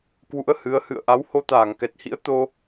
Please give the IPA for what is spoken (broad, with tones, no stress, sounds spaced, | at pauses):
k w ṵ˧˥ ə̯ h ɨ˨˦ ə̯ h ɨ̰˧˨ ə̯ ʔ a˨˦ w h o˧ t̪ aː˧˩ ŋ k ɛ˨˩ t̚ h ḭ˧˥ ə̯ t̪ o˧